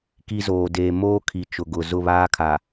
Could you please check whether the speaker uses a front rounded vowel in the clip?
no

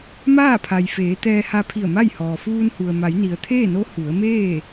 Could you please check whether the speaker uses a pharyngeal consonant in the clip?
no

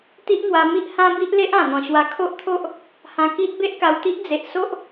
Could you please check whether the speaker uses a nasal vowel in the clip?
yes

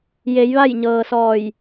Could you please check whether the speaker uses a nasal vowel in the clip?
no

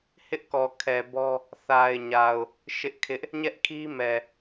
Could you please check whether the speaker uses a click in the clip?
no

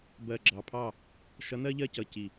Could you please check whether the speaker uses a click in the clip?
yes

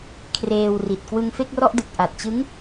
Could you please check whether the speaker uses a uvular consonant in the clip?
no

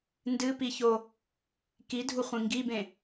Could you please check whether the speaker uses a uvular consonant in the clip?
yes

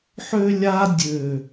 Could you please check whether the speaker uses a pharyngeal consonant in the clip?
yes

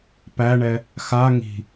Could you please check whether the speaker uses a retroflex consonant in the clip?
yes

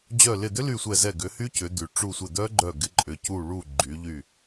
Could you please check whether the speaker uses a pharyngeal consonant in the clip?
no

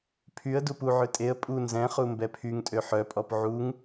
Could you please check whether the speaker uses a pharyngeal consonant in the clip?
yes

